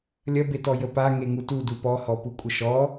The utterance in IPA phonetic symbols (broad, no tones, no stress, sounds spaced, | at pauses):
lʲ ɐ b e t ɔ j ə p a ŋ e ŋ u t u d u p ɔ h ɔ p u kʷʼ ə ʃ ɔ